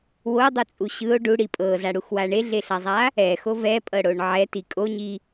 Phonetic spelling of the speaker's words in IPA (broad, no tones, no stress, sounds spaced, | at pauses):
w o dˤ ɯ t͡sʼ u ɕ ɯ o̯ ɖ u ɽ i pʼ ɤ z a ɽ u x w a ɳ e ɮ e ɬ a zˤ a | ɛ x o v ɛ pʼ ɤ ɽ o ɳ ʕ ɛ t i kʼ o ɲ i